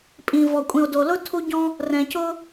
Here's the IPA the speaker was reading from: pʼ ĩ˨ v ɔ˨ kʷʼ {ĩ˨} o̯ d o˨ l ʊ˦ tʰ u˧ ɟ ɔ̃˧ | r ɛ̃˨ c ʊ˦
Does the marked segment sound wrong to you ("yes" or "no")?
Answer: no